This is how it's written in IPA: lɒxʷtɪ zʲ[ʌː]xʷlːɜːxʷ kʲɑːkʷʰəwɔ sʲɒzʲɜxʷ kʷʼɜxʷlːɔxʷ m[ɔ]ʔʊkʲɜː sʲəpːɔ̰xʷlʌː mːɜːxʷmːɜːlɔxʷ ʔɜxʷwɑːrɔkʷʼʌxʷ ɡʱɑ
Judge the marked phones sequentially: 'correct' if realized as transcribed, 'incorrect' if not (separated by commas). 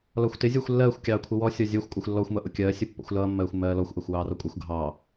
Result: correct, incorrect